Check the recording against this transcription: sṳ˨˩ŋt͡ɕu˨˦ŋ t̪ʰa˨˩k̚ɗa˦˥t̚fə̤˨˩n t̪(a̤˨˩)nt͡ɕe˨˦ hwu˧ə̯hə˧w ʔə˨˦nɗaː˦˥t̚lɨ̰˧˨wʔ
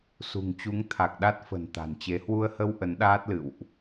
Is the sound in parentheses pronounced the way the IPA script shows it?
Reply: yes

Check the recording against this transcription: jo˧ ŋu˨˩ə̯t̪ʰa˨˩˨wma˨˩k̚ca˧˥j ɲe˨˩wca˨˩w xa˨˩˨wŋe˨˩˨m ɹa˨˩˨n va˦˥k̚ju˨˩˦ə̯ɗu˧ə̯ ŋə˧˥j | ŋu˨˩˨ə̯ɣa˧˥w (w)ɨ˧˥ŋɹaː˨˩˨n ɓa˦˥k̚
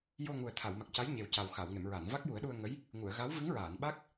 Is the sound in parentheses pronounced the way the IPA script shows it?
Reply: no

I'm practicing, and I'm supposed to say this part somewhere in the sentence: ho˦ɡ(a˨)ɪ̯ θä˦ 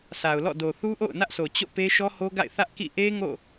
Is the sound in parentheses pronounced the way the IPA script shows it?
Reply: no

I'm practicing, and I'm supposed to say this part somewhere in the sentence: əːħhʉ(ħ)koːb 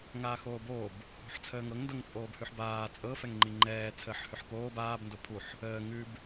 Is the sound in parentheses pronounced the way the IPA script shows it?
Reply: yes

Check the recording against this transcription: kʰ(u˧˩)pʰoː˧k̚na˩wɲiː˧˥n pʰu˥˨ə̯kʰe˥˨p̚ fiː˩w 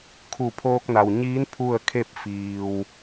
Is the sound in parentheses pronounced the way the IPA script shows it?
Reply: yes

